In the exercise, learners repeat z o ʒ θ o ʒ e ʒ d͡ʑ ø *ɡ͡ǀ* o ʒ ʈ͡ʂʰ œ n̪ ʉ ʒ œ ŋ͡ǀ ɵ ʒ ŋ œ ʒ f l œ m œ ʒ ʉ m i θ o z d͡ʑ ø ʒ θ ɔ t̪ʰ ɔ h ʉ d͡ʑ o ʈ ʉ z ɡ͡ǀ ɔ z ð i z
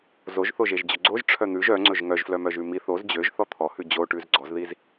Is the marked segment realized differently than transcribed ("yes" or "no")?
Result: no